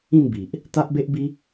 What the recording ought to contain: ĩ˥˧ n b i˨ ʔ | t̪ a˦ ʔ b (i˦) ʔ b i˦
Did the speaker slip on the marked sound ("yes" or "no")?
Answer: yes